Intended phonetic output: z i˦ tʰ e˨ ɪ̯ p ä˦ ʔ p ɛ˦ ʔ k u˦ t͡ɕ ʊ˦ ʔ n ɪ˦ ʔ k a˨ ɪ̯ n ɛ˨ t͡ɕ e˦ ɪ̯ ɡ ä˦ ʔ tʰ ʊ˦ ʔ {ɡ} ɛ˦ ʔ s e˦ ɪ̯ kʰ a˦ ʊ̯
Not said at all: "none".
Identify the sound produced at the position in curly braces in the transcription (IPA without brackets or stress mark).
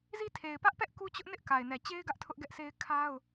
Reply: ɡ